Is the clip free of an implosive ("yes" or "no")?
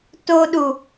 no